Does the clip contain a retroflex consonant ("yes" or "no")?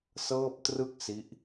no